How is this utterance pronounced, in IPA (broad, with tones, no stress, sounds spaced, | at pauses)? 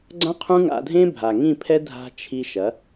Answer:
ɡ͡ǀ ã˦ qʰ ũ˦ ŋ a̰˧ dʱ ẽ˦ bʱ a˨ ŋ ĩ˦˨ pʰ ɛ˦ dʱ a̤˧ t͡ʃʰ i˧ ʃ ɐ˨˦